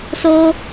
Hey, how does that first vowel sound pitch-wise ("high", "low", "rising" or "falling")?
high